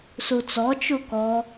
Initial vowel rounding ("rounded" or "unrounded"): rounded